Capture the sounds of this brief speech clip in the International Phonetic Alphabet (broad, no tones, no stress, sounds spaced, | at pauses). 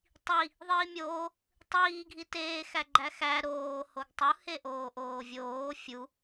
tˤ i | ðˤ iː mʲ oː | tˤ iː ɡʱ i t eː x æ ɡ͡ǃ æ x æ ɾ oː h o ɡ tˤ u h e ʔ oː ʔ oː vʲ oː fʲ u